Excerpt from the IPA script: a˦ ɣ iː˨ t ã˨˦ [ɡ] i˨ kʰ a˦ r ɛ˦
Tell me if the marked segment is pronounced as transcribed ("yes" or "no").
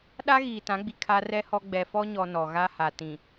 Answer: no